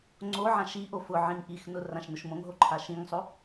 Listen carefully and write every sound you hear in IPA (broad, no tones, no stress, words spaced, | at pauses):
ŋ͡ǀo ʕãʃiʔo fʊʕĩŋ ʔixnʊ rãʃnʊʃmõŋɦo ǃʰaʃĩŋsˤo